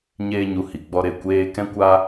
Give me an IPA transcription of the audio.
ɲ eː˦ ɲ u˧ h i˨ ɡ͡b ɔ˧ ɾ e˧ kʷ eː˦ k ɛ̃˦ kʷ a˦

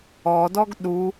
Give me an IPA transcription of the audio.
ɔ d ɔ ɡ ɗ u

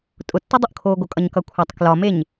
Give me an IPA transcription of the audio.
tʼ ʊ tː u dˤ ʊ ʔ kʰ oː ɡ o kʼ ʌ ɲ k ʌ kʷʰ æ tˤ k l ɒ m e ɲ

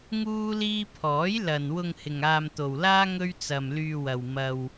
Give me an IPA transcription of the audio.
ŋ uː˥ l iː˥ pʰ ɔː˨˥ j l ɐ˨ n w ʊ˧ ŋ h ɪ˨ ŋ aː˧ m t̪ o˨ w l aː˥ ŋ ɵ˥ ɥ t͡s ɐ˧ m l yː˧ w ɐ˨ w m ɐ˧ w

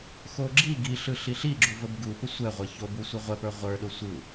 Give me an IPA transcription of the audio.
x o ɡ͡ǁ i ɡ i ɬ ɯ ɬ i ɬ i ɡ͡ǁ u v ə b ɡ u p ə sʷ ɛ ʁʷ ə ç o b u sʷ i ʁʷ ɛ p ə˞ ʁʷ ə˞ ɗ o sʷ ɯ u̯

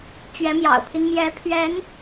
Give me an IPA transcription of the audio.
t͡ɕ ɥ ɛ˧˥ m j ɑ̰˨˩ ʊ̯ pʰ i˦ n m j ɛ˧˥ pʰ ɥ ɛ˧˥ n

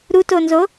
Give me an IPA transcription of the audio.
ɾ u t o n z o

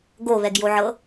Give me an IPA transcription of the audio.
ɡ o β ɛ ɡ j o ʕ ɤ

